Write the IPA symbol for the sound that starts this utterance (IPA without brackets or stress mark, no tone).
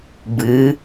b